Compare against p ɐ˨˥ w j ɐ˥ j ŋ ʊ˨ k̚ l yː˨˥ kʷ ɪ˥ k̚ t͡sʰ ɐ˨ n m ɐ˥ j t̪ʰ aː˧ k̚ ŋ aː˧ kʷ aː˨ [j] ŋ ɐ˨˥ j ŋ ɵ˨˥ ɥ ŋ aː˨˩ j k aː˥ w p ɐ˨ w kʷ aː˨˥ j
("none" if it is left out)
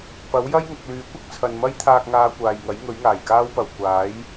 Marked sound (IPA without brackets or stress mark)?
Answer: j